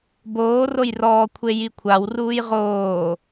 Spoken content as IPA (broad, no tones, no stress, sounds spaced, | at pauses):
b oː r o j r ɔː kʷʰ e j i kʷʰ a w r uː j ʁ oː